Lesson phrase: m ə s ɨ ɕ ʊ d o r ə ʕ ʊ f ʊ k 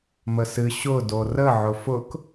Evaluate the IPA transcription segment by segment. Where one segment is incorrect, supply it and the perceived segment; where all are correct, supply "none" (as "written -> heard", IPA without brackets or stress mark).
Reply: none